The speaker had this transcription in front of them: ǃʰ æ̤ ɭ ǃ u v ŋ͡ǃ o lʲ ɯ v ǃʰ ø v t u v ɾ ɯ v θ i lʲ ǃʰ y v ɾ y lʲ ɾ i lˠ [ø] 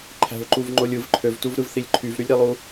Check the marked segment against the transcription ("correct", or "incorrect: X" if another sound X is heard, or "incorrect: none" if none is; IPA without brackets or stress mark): incorrect: u